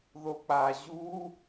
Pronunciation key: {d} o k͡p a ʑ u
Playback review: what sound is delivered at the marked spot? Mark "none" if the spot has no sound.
ð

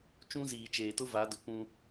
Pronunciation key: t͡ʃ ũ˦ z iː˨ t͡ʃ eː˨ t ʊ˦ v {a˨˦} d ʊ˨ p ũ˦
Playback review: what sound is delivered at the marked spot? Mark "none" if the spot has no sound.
a˨˦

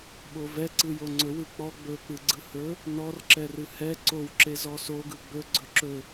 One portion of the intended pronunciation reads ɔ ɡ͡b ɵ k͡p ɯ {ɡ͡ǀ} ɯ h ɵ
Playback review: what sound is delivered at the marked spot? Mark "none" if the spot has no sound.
ɡ͡ǀ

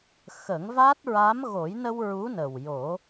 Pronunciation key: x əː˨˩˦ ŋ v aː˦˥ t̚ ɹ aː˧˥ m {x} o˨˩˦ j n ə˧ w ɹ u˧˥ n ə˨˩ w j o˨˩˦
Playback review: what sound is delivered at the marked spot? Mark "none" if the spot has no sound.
ɣ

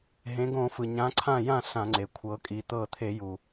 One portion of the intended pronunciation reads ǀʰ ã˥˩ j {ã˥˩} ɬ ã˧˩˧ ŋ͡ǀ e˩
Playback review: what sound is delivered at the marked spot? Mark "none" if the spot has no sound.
ã˥˩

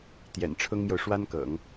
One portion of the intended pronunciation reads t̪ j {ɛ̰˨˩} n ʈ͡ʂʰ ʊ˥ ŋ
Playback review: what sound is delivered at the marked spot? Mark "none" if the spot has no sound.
ɛ̰˨˩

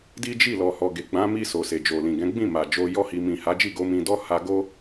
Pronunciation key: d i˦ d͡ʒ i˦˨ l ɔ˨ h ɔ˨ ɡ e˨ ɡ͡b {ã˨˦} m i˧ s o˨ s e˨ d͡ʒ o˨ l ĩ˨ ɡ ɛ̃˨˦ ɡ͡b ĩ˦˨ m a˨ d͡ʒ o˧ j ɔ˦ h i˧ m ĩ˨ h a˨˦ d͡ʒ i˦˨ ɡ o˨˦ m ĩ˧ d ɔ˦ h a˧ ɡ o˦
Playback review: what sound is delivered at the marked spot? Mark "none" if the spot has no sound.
ã˨˦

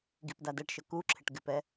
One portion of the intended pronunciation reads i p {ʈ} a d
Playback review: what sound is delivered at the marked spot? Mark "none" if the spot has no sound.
d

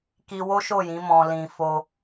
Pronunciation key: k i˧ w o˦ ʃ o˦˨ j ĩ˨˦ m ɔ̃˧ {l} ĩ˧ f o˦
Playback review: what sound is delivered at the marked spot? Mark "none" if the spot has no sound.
l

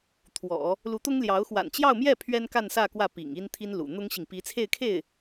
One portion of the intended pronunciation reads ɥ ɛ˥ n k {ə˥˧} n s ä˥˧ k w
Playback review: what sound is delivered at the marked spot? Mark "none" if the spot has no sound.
a˥˧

